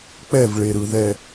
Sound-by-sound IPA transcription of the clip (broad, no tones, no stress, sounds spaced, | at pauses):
k͡p ɛ v ɭ e ɾ ɯ ð ɛ